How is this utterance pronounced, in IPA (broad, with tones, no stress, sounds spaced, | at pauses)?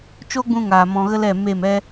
t͡ʃ o˦ ɡ͡b ũ˧ ŋ aː˨ m ɔ̃˨ ɣ ə˦ l ɛ˦˨ m e˦˨ m ɛ˦